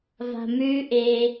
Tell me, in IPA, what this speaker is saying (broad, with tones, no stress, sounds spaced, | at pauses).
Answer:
v a̤˧ m ʉː˦ ʔ eː˧